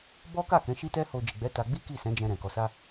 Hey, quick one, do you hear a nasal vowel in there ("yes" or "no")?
yes